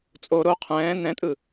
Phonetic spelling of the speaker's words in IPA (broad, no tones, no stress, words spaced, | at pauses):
t͡sʼo ɾo qʰɛ̃ː nɛ̃tʼɯ